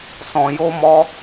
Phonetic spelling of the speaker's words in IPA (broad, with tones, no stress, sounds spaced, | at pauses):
s ɔ̃˧ j o˦ m ɔ˦